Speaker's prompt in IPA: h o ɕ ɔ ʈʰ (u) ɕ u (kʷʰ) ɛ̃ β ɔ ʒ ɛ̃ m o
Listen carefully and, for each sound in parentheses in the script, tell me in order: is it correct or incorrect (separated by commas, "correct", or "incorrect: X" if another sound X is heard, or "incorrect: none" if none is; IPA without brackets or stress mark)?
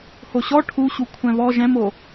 correct, correct